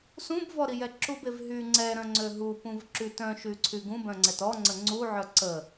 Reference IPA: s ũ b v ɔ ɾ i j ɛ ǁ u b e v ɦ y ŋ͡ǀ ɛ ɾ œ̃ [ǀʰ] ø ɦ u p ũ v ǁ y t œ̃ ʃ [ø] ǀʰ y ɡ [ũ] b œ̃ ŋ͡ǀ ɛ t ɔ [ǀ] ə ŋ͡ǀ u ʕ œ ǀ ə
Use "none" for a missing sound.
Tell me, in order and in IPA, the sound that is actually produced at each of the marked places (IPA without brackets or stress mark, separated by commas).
ŋ͡ǀ, y, ũ, ŋ͡ǀ